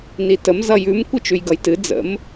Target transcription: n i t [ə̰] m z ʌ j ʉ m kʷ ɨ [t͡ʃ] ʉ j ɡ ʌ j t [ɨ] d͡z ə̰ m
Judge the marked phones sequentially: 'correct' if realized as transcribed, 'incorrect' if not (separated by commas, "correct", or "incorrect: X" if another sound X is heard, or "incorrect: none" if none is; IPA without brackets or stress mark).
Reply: incorrect: ə, correct, correct